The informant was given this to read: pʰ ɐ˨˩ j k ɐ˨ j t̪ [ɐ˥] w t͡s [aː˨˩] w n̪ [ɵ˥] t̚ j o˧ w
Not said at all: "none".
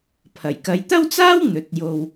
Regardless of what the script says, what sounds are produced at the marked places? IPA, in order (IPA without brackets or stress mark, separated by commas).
ɐ˥, aː˥, ɵ˨